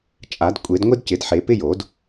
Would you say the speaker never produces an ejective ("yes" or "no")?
no